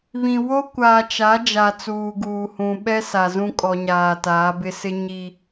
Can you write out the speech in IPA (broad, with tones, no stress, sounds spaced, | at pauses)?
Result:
β ĩ˨ w o˦ kʷ aː˨ t͡ʃ a˨˦ d͡ʒ a˨ t͡s uː˨ ɡ uː˨ h ũ˨ ɓ ɛ˦ s a˨ z ũ˦ kʼ ɔ˨ ɲ aː˨ t aː˨˦ b ɪ˦ s ɪ˦ ɲ i˨